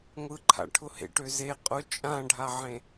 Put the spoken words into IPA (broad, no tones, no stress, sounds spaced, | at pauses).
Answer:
ŋʷ ɯ ǃʰ a̰ ʈʰ ʊ h ḛ ʈ ø z e qʼ ʊ t͡ʃʼ ã ɖʱ a ʕ ẽ